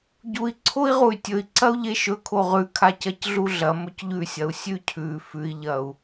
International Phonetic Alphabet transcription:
ɟ u i̯ ǀʰ o i̯ ʁ u y̯ tʲ ɵ i̯ ǀ ɐ u̯ ʎ e ʃ ɵ kʰ o ʁ ʉ kʰ a c ɐ c ɮ u ɮ ɐ m ɵ c ʎ ʉ sʲ ɐ u̯ sʲ ʉ cʰ ʉ f ʉ i̯ ʎ ɐ u̯

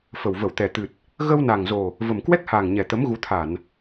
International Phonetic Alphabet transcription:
f ə˨˩ w v ə˧˩ w t̪ ɛ˨˩ t̪ ɨ˨˩ t̚ | ɣ ə˧ w n a˨˩ ŋ z o˨˩ | v ə˨˩ m k w ɛ˦˥ k̚ h aː˨˩ ŋ ɲ ɛ˨˩ t̪ ə˨˦ m ɣ u˨˦ t̪ʰ a˧˩˨ n

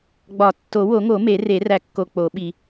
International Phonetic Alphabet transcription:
ɡ͡b ɒ˨˩˦ tː o˨˩˦ w o˨˩˦ ŋ o˨˩˦ m e˨˩˦ r e˨˩˦ r æ˨ kː o˨ k͡p o˨˩˦ ɓ i˨

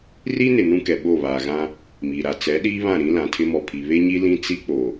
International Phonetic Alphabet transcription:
r i˦ n ɪ˨ n ũ˦ k ɛ˨ ɓ o˦˨ β aː˨ ɣ ã˦ | m iː˨ ɾ a˨ t͡s ɛ˨˦ ɗ iː˦ β ã˦˨ ɾ ĩ˦ l ã˨ tʰ ɪ˦ m ɔ˨ pʰ i˨ β e˦ ɲ i˦ l ĩ˦ t͡s i˦ k͡p o˨

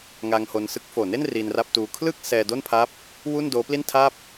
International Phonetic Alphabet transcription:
ŋ a˧ ŋ h o˧ n s ɯ˥˩ k̚ f oː˨˩ n e˥˩ n r i˧ n r a˥˩ p̚ t uː˧ kʰ l ɯ˥˩ k̚ s ɛː˧ d o˥˩ n pʰ a˦˥ p̚ | w u˥˩ n d oː˦˥ p l i˥˩ n tʰ a˥˩ p̚

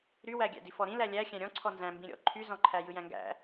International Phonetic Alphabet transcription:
ɾ y w æ ɡʲ æ̰ d i f ɔ ɾ ĩ l æ lʲ æ xʲ æ̃ ɾʲ ɔ̃ ǀʰ ɔ n z æ̃ m b ĩ ɾʲ ɔ̰ ǃʰ y z ɔ̃ ǃʰ æ j ɯ j æ̃ ŋ ɡ æ̰

